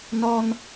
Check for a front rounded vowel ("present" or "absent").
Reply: absent